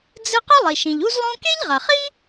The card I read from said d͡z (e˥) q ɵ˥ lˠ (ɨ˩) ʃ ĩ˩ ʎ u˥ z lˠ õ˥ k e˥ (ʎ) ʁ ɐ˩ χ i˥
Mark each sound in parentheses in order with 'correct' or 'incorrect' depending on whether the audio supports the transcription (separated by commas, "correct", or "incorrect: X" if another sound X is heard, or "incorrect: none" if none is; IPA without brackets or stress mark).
incorrect: ɨ˥, incorrect: i˩, correct